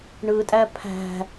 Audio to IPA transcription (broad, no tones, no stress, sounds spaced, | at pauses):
ɳ ɯ tʼ æ pʰ æ̤